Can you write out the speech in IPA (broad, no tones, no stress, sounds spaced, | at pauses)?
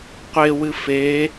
qʷ e w ɨ f e